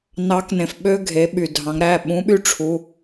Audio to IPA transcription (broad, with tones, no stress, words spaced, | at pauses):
nɑ˧˥knẽ˩fɓø˥ ɡʱe˩˧ɓy˩dʱɑ̃˩˧ŋ ɾæ˩˧˩ ɓũ˧˥ɓy˥ʈ͡ʂʰu˩˧˩